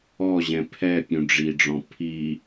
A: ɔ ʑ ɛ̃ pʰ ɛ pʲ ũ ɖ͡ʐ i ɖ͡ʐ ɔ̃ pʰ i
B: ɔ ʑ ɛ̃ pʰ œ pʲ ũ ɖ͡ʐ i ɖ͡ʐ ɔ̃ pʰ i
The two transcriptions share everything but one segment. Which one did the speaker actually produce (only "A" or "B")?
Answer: A